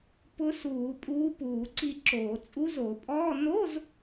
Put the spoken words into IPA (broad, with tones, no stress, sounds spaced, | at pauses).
p ʊ˧˥ s uː˧˩˧ pʼ uː˧˥ p uː˧˩˧ ǀ i˦˨ ǁ oː˧˩˧ t͡sʼ u˧˥ z o˧˩˧ pʼ ɔː˧˥˧ n o˧˥˧ z